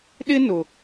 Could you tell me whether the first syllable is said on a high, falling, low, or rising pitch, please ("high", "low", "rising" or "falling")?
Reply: high